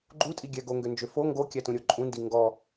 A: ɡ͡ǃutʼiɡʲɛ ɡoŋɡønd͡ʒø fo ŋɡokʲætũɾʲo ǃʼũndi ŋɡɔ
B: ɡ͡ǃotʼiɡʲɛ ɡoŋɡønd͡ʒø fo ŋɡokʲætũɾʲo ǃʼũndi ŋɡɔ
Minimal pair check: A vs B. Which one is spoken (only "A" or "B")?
A